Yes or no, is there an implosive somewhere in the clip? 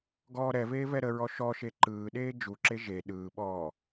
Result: yes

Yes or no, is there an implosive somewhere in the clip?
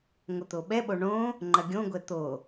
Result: yes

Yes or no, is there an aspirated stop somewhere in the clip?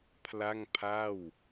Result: yes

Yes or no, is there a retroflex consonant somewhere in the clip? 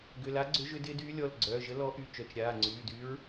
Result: no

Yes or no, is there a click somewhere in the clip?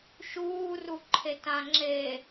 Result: yes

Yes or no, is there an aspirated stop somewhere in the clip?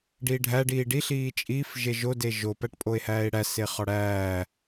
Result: no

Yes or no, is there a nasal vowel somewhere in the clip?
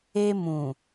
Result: yes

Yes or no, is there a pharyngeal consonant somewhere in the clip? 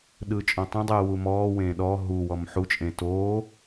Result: yes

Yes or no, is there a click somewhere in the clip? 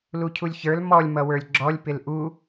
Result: yes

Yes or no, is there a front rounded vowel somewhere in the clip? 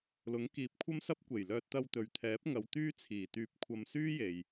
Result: yes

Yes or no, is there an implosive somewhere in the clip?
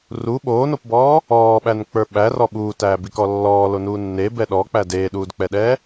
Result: yes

